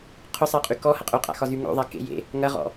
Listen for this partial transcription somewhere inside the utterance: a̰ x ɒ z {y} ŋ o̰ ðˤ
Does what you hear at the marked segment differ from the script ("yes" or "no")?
no